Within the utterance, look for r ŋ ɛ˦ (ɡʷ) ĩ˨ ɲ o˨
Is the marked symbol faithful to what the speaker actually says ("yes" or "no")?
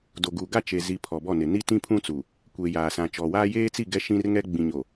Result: no